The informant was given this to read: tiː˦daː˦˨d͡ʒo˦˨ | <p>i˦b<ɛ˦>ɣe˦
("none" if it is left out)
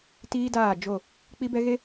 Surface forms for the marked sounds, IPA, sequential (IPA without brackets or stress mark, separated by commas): k͡p, ɛ˦